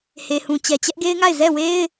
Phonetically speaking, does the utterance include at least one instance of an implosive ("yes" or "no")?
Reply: no